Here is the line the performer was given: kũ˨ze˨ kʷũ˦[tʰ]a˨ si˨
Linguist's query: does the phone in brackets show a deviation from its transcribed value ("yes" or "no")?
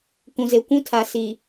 no